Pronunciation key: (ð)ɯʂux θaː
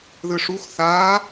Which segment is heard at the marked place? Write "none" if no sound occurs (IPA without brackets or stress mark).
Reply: ð